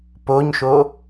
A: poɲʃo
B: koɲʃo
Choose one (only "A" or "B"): A